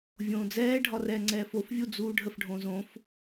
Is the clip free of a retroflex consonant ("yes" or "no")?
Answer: no